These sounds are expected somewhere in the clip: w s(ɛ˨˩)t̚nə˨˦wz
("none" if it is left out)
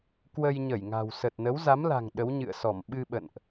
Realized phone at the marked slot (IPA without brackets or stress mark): ə˨˩